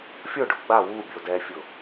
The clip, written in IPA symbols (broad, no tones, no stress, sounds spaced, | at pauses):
fʲ ʊ ɖ ʊ ɡ͡b a w u bʲ o d ɛ fʲ ʊ